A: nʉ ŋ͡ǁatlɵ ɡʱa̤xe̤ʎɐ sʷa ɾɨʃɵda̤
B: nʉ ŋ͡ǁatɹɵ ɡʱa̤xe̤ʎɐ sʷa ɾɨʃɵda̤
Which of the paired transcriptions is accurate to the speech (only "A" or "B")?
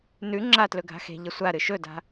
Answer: A